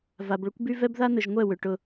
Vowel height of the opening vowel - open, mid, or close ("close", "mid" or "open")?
open